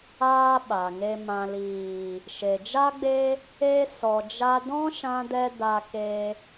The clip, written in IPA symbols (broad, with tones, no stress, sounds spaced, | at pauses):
aː˦ ɓ a˨ ŋ e˧ m ã˨ l iː˨ | ʃ e˨ d͡ʒ a˦ ɡ͡b e˦ | e˦ s ɔ˨ d͡ʒ a˧ d ɔ̃˦ ʃ ã˦ d ɛ˦ d a˧ k e˧